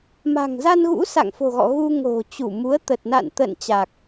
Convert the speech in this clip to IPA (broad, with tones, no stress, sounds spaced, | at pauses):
m a̤˨˩ ŋ z a˧ n ɣ ṵ˧˥ s a̰˧˨ ŋ f o̤˨˩ ɣ ɔ̰˧˨ ɣ u˧ ŋ o̤˨˩ t͡ɕ u˧˩ m u˨˦ ə̯ t̪ ə˨˩ t̚ n a̰˧˨ n t̪ ə̰ː˧˨ n t͡ɕ a˨˩ k̚